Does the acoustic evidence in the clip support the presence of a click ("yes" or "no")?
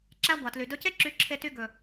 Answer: yes